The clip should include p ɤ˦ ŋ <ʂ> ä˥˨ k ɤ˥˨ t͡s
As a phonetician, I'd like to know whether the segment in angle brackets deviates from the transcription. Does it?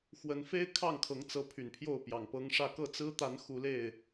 no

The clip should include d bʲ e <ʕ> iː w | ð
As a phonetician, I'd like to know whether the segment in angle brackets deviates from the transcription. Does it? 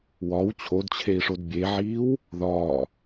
no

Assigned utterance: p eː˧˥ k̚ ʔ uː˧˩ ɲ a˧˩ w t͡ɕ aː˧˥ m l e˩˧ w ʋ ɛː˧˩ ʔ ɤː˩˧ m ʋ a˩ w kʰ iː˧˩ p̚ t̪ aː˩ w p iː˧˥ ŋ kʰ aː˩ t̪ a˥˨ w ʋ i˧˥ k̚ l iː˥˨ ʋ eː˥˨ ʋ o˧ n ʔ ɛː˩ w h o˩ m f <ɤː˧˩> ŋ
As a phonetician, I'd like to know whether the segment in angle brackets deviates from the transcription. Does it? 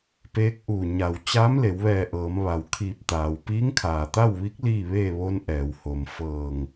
no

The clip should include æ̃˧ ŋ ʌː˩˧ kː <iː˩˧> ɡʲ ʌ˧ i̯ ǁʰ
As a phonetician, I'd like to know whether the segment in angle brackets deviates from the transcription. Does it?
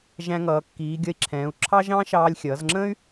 no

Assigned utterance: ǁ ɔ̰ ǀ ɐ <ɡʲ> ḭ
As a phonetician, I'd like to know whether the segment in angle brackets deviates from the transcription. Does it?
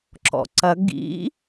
yes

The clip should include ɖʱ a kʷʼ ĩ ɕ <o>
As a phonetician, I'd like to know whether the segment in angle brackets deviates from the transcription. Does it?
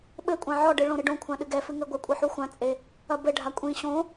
yes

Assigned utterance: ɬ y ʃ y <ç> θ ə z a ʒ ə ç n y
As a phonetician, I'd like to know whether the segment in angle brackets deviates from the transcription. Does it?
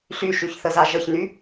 no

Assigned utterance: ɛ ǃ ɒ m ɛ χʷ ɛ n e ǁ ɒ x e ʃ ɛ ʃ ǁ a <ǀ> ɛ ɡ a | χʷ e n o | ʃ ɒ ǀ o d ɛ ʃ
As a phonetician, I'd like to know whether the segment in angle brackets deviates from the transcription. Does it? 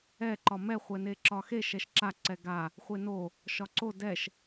no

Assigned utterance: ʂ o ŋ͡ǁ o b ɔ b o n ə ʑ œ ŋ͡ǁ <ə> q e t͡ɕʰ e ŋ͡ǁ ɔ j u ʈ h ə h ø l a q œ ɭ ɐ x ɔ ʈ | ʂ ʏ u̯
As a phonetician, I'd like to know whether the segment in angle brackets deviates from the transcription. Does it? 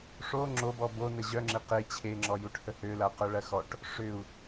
yes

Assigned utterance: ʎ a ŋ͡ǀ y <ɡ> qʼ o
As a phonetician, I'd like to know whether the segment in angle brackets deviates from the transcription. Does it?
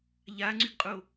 no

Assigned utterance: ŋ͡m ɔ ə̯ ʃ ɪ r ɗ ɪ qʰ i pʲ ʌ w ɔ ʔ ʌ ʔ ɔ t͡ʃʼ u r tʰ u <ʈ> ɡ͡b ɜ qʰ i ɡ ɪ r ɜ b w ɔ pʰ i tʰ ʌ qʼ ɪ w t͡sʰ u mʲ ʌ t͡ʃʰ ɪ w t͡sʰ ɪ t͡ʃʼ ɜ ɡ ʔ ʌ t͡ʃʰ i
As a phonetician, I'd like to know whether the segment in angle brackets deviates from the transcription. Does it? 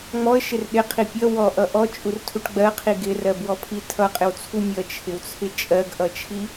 no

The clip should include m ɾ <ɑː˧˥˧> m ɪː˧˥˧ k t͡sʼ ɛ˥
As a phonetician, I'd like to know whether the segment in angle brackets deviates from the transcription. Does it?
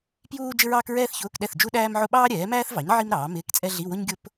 yes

